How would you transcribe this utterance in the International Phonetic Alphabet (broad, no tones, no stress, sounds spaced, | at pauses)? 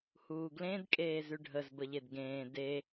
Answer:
h uː ɡ l ẽ d kʼ eː z ʉ ɖʱ ə z b ə ʎ e d ɡ ẽː d e